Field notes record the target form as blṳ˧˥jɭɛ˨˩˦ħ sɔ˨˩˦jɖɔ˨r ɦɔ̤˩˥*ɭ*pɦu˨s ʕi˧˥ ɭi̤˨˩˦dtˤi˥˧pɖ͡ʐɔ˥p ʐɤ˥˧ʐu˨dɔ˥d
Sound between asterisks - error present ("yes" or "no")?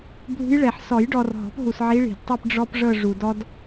yes